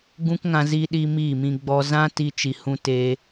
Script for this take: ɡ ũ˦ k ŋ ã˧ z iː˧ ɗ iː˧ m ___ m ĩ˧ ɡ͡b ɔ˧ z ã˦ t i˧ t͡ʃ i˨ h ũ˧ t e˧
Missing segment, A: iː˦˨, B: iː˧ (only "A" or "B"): A